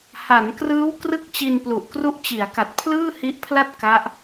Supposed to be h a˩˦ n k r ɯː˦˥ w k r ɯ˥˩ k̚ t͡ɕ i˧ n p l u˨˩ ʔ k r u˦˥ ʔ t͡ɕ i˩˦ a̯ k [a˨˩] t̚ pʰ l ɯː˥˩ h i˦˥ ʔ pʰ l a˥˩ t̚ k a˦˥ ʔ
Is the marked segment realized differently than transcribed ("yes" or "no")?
no